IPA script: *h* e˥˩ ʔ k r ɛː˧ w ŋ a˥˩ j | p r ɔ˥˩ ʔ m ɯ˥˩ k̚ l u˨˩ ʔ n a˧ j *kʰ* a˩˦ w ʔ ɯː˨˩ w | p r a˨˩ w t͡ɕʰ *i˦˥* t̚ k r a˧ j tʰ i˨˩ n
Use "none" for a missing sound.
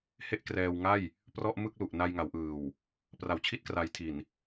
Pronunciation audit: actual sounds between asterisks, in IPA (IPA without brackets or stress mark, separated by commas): h, ŋ, i˥˩